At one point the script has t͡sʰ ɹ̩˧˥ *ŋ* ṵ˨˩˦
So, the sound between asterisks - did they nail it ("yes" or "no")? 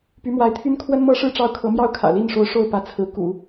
no